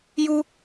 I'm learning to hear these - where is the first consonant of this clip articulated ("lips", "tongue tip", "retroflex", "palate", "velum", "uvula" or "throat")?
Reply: palate